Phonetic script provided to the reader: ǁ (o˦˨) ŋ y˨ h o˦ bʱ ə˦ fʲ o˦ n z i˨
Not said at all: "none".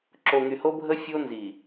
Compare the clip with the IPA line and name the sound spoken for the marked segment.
o˨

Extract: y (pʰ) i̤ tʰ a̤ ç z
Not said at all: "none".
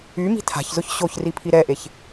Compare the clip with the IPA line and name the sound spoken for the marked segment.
m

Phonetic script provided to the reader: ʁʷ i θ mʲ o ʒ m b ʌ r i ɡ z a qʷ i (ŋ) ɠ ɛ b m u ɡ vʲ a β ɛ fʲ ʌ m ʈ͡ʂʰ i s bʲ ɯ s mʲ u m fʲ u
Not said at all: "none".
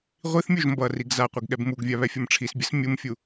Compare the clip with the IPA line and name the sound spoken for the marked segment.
ɡ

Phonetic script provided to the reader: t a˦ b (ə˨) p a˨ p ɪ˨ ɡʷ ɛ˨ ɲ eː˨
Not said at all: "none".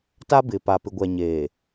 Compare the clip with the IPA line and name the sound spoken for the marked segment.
ɪ˨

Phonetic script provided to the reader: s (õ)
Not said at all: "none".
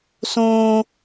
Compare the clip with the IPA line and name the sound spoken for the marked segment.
õ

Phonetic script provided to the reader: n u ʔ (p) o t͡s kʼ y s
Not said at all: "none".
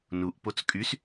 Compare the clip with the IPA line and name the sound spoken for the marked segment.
p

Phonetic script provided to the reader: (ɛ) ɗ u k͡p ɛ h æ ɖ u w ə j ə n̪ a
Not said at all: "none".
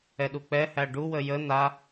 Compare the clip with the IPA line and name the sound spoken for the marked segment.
ɛ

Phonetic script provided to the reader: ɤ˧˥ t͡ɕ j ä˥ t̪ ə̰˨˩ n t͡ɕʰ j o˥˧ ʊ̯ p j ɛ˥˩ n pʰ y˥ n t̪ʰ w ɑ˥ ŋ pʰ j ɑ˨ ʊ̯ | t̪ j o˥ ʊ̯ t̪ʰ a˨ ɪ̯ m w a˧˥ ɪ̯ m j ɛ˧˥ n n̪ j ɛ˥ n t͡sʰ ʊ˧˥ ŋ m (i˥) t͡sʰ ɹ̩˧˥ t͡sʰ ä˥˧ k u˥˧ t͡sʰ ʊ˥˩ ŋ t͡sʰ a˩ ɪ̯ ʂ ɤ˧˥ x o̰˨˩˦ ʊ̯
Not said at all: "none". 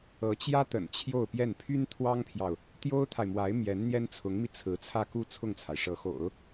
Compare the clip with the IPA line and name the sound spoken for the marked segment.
i˧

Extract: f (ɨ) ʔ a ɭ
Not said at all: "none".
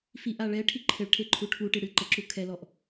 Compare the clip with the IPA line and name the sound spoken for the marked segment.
i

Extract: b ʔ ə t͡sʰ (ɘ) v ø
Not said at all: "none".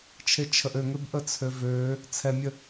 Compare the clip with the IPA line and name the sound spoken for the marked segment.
ø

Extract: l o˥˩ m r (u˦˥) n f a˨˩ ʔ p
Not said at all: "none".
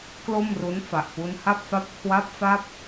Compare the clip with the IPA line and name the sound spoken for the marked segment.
u˦˥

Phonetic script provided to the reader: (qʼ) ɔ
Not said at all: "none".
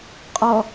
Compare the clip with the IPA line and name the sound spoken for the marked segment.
qʼ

